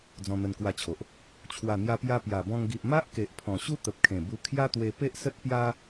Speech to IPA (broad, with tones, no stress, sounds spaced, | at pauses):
d͡z ɔ̃˧ n̪ ə˧ n k w a˧ t͡ɕʰ o˨ ʔ | t͡ɕʰ w a˨˩ n̪ j a˧ p j a˧ p j a˨˩ b ɔ̃˧ ŋ ɡ i˨ ʔ m a˦ ʔ k e˨ ʔ pʰ ɔ̃˨˩ ɕ u˦ t̪ ə˨ p̚ kʰ ẽ˨˩ b u˧ kʰ j a˦ t̪ w e˧ p e˦ ʔ s ə˦ t̚ p j a˦